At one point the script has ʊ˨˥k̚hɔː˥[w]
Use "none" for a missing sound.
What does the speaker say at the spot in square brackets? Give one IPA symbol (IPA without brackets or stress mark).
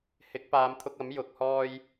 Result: j